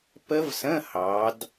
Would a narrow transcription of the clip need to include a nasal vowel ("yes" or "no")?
yes